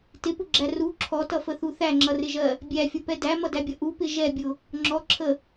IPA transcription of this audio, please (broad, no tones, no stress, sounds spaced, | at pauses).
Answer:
t ɪ p ʊ ɡ͡ǁ æ r u ǁʰ ɔ t ʌ f ə θ u θ æ ŋ͡ǁ ʌ r ɪ ʒ ɜ | bʲ æ fʲ ʌ p ɛ d æ m ʌ d æ bʲ ʌ ʔ u p ɪ ʒ ɛ bʲ ʊ | ŋ͡ǁ ɔ ǁʰ ə